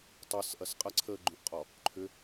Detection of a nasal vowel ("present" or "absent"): present